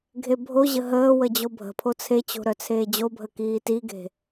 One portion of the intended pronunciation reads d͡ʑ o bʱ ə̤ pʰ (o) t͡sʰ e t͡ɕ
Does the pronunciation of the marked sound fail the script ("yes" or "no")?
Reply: no